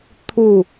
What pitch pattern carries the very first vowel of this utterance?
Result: falling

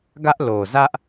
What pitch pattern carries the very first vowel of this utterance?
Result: high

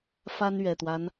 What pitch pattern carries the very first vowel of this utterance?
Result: high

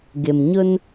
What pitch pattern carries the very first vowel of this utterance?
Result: low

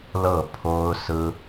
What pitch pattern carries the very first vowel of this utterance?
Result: falling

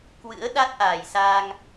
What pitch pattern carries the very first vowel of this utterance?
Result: rising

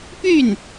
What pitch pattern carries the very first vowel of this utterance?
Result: falling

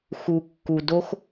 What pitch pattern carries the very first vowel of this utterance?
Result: low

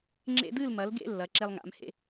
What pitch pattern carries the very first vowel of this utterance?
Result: high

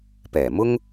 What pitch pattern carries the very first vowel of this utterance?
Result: low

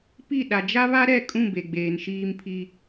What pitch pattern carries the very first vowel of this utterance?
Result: falling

